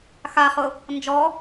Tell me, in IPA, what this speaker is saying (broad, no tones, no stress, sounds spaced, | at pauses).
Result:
x a χ ʊ | n d͡ʒ ɔ